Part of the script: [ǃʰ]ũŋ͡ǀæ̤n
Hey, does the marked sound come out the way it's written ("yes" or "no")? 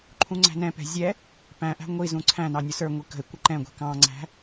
yes